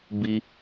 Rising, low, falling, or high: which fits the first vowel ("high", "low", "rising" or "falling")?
high